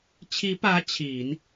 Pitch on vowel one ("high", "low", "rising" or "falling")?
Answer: rising